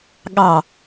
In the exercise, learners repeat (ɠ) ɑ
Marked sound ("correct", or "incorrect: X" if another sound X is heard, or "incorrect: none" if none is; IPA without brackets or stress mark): correct